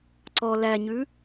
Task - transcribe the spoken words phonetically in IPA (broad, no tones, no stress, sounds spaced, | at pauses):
ǀ ɔ l æ ɲ ʉ